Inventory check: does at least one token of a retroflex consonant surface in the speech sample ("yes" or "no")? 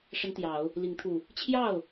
yes